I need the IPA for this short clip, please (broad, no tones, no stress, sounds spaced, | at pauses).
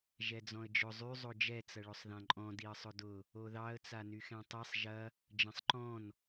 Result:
ʒ ɛ d͡z ɔ̃ ə̯ d͡ʒ ʊ zˤ y zˤ o d͡ʒ ɛ t͡s ɐ ɭ ʊ sˤ ð ã ǃʼ ɔ̃ d i ə̯ sˤ ʊ d ʊ | o ð ɑ ə̯ t͡s a n y x ɛ̃ tˤ i sˤ ʒ ɐ | d͡ʒ ɐ̃ sˤ ǃ ɔ̃ n